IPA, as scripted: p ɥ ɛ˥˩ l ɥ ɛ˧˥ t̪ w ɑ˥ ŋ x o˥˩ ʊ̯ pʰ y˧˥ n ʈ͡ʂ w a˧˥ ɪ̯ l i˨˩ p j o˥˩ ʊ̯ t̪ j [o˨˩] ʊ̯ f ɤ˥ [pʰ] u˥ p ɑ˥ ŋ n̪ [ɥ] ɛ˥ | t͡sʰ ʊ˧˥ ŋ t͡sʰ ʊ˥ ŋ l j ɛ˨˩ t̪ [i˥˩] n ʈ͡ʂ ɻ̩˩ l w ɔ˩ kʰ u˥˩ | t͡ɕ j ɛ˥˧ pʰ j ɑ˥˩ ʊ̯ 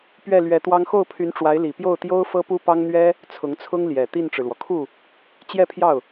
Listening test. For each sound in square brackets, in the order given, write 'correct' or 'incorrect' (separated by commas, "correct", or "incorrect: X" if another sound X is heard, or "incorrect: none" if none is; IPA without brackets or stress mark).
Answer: incorrect: o˥, incorrect: p, correct, correct